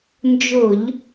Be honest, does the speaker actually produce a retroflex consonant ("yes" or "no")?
no